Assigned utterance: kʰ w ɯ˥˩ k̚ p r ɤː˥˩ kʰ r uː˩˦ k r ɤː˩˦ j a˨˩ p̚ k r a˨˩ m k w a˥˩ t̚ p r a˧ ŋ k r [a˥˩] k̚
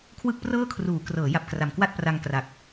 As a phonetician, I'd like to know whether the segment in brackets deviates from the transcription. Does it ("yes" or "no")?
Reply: yes